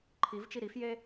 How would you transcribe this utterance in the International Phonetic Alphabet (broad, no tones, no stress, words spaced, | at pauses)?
ǃʰivt͡ʃi ɾifje